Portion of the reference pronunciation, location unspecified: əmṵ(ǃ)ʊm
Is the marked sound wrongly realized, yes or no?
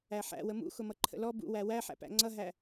yes